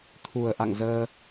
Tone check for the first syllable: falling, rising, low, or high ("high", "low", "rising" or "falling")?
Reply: low